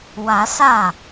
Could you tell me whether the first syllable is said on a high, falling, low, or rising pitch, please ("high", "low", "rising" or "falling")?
rising